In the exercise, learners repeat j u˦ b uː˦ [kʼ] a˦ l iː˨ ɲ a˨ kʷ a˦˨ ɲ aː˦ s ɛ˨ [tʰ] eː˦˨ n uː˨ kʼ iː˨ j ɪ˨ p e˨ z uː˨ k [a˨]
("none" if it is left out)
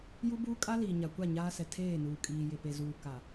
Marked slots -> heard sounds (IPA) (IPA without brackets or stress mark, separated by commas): kʼ, tʰ, a˨